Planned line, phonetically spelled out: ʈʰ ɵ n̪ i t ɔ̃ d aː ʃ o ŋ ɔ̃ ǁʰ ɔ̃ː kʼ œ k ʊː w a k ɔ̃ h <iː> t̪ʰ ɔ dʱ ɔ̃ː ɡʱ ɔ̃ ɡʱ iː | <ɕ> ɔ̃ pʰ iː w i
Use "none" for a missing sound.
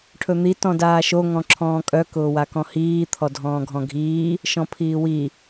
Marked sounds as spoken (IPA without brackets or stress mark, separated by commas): iː, ʃ